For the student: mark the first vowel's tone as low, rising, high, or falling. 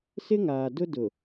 high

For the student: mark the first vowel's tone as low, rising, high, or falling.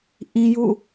high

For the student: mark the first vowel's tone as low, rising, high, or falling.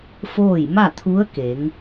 falling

